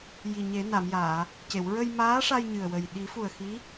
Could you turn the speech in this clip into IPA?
j i˨˩ ɲ e˨˩˦ n a˨˩˨ m j aː˨˩˨ | c e˨˩˨ w ɹ ə˧ j m aː˧˥ ʂ a˧ j ɲ ɨ˨˩ ə̯ w ə˨˩ j ɗ i˨˩˦ f u˨˩ ə̯ x i˧˥

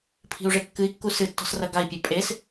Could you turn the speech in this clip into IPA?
pʰ i̤ u̯ ʐ e kː ɨ i̯ kː u s ɨ tː ɔ̤ s r ɐ ɡ a i̯ pʲ e pʼ e s

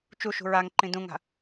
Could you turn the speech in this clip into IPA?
t͡ʃ u ʃ ṳ ɹ a ŋ ǃ ĩ d ũ ŋ a̤

